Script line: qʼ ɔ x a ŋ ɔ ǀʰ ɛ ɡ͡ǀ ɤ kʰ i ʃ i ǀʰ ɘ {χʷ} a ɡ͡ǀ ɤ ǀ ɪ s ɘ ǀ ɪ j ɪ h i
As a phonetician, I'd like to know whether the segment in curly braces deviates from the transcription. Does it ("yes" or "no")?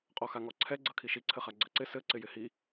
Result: yes